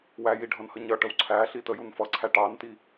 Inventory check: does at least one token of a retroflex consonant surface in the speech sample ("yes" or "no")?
yes